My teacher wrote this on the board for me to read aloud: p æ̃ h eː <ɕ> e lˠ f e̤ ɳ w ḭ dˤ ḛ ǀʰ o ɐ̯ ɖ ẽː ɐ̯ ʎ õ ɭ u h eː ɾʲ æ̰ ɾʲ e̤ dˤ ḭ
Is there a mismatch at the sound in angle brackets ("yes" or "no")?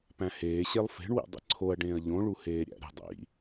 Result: no